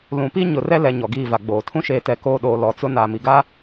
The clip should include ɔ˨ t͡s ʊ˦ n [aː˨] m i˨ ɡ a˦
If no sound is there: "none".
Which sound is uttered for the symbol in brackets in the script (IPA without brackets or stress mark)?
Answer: aː˨